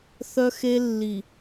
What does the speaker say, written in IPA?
θ œ˦ x e˦ lː i˨

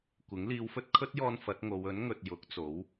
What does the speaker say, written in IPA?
kʷ ɪ˨˥ ŋ l iː˨˧ w f ɵ˧ t̚ kʰ ɵ˥ t̚ j ɔː˧ n f ɐ˨˥ t̚ ŋ o˨˧ w ɵ˨˥ n ŋ ɵ˨ t̚ j ʊ˨˥ k̚ t͡s o˨˥ w

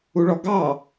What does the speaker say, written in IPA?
u ɭ ɔ ɡ ɑ

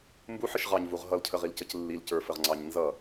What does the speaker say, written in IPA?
m b u ħ ə ʃ ʁ ɑ ɲ v u ʁ ɦ ʌ l cʰ ə ʁ i l c ə c lː i l c ə˞ f ə ʁ ŋ͡ǀ ɑ ɲ n z ʌ

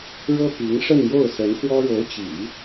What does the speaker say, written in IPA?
ɻ ɤ˥ p i˧˥ ŋ ʂ ə˥˧ n j o˥˩ ʊ̯ s ə˧˥ n x w ɔ˥ ɻ o˧˥ ʊ̯ t͡ɕ ḭ˨˩˦

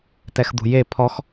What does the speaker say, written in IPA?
t ɛ x d̪ ṳ j e pʰ ɔ x

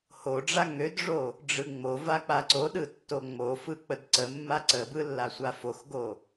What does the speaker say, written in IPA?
h o ɖ͡ʐ a ŋ ø d ʐ o | ɖ͡ʐ ɯ ŋ͡m o v a k͡p a ǀ o ɗ ɯ tː o ŋ͡m o f ɯ k͡p ə d ǀ ə mː a ǀ ə b ɯ lː a sʷ a f o x ɡ o

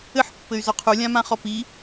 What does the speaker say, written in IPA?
ɘ ħ pː ɘ y̯ z ɔ qʰ u lʲ ã m ã χ ɔ p i

